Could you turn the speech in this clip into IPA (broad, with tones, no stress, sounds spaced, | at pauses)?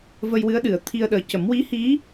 v ə˧ j w ɨ˧˥ ə̯ ɗ ɨ˨˩˨ ə̯ t̪ʰ i˧ ə̯ ɗ əː˨˩˦ c ə˨˩˦ m w i˧˥ h i˧˥